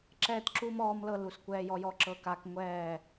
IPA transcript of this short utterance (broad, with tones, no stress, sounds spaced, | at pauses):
ǁ ɛː˦ t ǁ uː˦ m ɔː˦ m l ɤ˦ l u˨ s kʷ ɛː˦ j ɔ˦ j ɔ˦ ǁ ɤ˦ k a˦ k ŋʷ ɛː˦˨